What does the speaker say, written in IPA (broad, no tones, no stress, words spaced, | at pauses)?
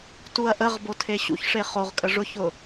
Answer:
tuɐ̯ʔəʁbo tʰeɕṵçʂe χoʁkʼə ʐʊçʊ